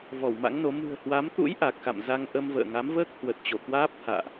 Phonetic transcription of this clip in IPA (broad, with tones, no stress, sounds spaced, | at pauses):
v ɔ˧˩ w m a̰˧˥ ŋ n o˨˦ m ɨ̤˨˩ ə̯ h w a˨˦ m t̪ ṵ˧˥ j ʔ a˨˩ k̚ x a̰˧˨ m z a˧ ŋ ʔ ə˧ m v ə̰ː˧˨ ŋ a˨˦ m v əː˦˥ k̚ h w ə˨˩ t̚ t͡ɕ o˧˩ k w aː˦˥ p̚ t̪ʰ a̰ː˧˨ ʔ